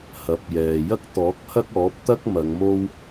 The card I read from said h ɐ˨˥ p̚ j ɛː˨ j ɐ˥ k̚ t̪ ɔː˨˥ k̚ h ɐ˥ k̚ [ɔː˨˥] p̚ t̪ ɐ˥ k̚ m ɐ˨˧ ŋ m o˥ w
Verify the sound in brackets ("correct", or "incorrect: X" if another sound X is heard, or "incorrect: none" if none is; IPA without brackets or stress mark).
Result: correct